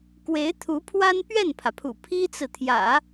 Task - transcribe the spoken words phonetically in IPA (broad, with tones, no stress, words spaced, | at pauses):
kwe˧˥ɪ̯t̪ʰu˧˥pʰwa˥n pɥɛ˥˩npʰä˩pʰṵ˨˩ pʰi˥t͡sɹ̩˨t̪ʰjä̰˨˩˦